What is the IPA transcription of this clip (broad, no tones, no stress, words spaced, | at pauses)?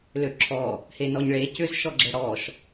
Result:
løǁʰɔ | henɔɲɭe cʏz ʃɔɡ͡ǁɛɽɔʃ